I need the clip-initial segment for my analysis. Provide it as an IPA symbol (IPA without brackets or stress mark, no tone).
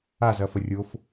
a